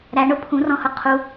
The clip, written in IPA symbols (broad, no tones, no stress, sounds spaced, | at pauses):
ɾ æ ɳ ʊ pʰ ũ r ɔ̃ h ʊ qʰ u